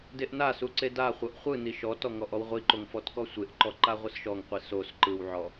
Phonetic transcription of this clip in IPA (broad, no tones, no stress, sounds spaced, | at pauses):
d e ʔ n a s u ǀ e d a χʷ ɤ ʔ χʷ ɯ n i ʃ ɔ t ɔ ŋ ɔ ʔ ɔ w ʁʷ i ǃ o ŋ f ɔ t k ɔ sʷ e ʔ ǃ ɔ ǃ a ʁʷ ɯ s ʃ ɔ ŋ qʷ i s o s ǃ ɯ w ʕ ɔ